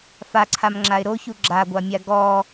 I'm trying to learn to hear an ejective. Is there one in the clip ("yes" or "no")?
no